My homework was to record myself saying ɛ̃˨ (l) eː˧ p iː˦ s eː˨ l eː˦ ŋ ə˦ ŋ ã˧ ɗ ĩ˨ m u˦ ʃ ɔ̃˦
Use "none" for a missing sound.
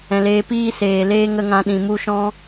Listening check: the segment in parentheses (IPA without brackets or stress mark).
l